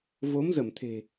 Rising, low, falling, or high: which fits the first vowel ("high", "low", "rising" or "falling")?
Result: rising